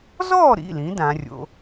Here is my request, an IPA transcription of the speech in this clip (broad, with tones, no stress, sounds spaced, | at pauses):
z ɔː˥˨ ɾ ḭ˩˧˩ l ĩ˩˧ d ãː˩˧ rʲ o̰˩˧